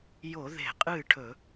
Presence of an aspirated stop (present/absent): present